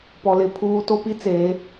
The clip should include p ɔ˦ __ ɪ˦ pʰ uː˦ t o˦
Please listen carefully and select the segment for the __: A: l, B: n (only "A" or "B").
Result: A